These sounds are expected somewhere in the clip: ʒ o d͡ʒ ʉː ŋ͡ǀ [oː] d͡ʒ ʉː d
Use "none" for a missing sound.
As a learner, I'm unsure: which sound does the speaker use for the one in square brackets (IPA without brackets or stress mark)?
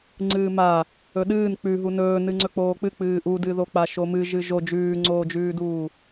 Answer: oː